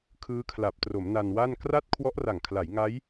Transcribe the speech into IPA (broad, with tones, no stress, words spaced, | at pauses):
kʰɯː˦˥kʰla˨˩p̚tro˩˦m na˧nwa˥˩n kra˥˩t̚ kʰwɔ˦˥ʔra˨˩ŋkʰla˩˦j ŋa˦˥j